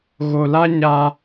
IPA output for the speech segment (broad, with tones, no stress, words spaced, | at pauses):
ɣo˨la˦ ɲa˦